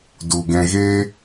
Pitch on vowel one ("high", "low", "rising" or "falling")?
low